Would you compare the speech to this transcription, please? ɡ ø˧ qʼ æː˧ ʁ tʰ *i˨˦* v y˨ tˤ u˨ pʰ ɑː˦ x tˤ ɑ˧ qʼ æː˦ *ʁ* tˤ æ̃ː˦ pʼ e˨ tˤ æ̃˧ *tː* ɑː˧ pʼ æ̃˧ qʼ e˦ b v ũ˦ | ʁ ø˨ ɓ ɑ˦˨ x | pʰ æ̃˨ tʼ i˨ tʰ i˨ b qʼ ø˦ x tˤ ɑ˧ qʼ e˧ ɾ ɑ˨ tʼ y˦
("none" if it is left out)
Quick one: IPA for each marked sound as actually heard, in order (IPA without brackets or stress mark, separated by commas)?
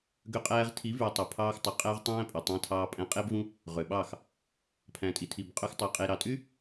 i˨˦, ʁ, tʰ